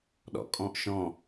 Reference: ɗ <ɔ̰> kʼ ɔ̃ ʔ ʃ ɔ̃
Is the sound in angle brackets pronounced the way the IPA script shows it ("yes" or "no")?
yes